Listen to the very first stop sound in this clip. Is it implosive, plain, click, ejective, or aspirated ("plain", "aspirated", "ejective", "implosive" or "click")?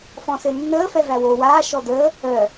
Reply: plain